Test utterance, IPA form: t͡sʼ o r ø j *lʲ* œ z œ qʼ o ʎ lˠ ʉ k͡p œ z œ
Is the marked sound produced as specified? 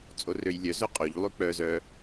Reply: yes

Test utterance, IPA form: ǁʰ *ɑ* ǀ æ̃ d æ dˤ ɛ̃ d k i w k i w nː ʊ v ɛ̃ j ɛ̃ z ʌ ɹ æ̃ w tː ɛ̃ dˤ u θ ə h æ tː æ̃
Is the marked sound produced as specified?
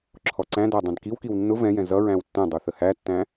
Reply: no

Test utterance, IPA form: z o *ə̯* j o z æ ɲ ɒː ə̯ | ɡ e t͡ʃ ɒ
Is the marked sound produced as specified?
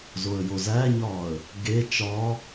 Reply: yes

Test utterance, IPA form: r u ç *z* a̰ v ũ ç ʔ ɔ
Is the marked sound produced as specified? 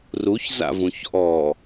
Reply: yes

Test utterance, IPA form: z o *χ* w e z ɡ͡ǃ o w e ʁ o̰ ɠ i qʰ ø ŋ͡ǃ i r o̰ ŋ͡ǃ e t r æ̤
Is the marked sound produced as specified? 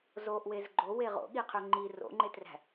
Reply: no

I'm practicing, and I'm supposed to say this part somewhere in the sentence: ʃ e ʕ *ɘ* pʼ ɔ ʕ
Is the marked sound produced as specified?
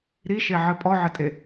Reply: yes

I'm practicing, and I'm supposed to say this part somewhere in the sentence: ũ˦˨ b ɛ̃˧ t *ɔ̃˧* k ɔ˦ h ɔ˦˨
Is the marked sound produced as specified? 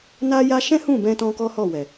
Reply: yes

